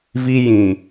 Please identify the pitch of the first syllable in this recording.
high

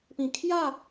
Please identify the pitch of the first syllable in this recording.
falling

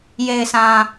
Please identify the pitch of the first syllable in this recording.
low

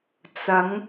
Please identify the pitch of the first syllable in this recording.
rising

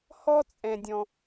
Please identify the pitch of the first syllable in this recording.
high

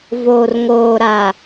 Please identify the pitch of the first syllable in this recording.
low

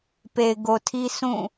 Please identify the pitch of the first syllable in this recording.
low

